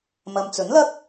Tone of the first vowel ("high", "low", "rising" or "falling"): low